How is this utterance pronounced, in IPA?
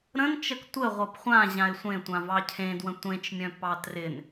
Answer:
ɾ ə̃ n t͡ʃ ə k tʷ ə ʁʷ ɤ p χʷ ã ʑ ã ɪ̯ sʷ ẽ tʷ ã v ɑ cʰ ẽ d w ə̃ tʷ ẽ t͡ʃ mʲ œ̃ p ɑ t r ɪ n

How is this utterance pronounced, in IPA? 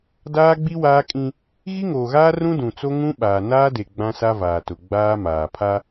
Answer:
d aː˦ ɡ͡b i˦ w aː˦ kʼ ĩ˦ | ɣ i˦ ŋ oː˨ ɣ aː˦ r ũ˦ d ũ˨ t͡s o˦ ŋ ũ˦ ɓ aː˨ n aː˦ d e˨ ɡ͡b ã˦ s a˦ v aː˨ t ʊ˨ ɡ͡b aː˦ m aː˨ pʰ a˦

